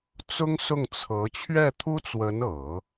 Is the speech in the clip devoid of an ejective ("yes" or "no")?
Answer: yes